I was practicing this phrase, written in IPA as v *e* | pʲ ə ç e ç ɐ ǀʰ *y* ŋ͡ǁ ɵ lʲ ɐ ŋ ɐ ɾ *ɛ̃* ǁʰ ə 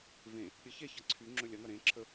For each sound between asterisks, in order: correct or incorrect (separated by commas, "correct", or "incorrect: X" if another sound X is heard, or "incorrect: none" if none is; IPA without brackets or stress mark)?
incorrect: ẽ, correct, incorrect: ẽ